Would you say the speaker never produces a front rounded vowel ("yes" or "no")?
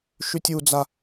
no